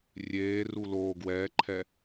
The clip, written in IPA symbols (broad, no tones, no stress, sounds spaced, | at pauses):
rʲ eː r u l oː ɡ w ɛː ǃʰ ɛ